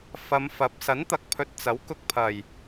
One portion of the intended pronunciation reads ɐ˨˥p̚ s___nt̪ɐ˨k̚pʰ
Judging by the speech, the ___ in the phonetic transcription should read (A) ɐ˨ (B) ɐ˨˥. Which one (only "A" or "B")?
B